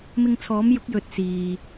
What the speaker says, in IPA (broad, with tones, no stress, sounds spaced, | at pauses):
m ɪ˧ ŋ t͡sʰ ɔː˨˥ m j ʊ˨˥ k̚ j ɵ˨˥ t̚ s iː˨